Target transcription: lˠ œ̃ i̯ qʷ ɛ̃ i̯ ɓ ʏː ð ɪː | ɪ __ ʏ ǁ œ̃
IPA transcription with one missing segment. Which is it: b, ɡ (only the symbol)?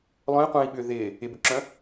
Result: b